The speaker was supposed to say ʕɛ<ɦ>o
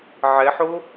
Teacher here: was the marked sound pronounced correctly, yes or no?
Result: no